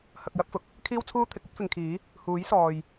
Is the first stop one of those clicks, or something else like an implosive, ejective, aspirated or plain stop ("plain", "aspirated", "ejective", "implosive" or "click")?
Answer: plain